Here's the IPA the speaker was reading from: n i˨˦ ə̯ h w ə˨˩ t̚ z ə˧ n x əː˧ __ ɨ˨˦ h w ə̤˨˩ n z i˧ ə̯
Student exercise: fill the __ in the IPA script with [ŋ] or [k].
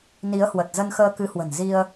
k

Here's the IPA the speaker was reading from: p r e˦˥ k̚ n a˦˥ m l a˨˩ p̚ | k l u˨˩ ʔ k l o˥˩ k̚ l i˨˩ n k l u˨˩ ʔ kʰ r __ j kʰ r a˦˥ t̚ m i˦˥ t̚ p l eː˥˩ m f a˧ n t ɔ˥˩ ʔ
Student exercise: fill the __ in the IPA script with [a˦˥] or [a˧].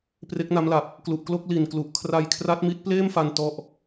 a˧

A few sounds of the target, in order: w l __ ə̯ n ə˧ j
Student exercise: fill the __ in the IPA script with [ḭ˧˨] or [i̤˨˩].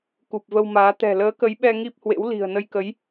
i̤˨˩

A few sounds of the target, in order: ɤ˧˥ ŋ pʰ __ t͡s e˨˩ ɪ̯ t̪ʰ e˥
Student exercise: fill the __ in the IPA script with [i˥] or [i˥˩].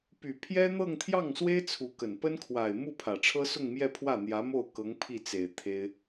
i˥˩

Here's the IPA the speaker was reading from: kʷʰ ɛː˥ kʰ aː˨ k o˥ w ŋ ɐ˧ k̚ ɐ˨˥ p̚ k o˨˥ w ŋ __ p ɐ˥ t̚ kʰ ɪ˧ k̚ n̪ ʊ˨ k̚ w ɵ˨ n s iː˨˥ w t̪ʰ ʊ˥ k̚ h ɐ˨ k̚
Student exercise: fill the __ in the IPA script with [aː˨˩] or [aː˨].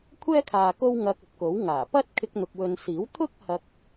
aː˨˩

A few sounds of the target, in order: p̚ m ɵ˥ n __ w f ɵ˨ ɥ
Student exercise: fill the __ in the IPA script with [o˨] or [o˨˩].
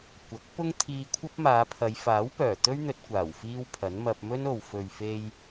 o˨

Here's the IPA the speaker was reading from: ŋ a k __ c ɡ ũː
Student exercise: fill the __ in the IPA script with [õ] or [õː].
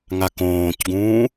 õː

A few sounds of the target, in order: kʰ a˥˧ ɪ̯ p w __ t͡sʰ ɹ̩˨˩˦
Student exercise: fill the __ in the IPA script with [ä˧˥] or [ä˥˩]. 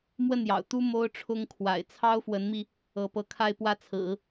ä˥˩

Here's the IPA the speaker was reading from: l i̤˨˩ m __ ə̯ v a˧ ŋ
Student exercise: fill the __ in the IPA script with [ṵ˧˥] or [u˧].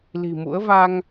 ṵ˧˥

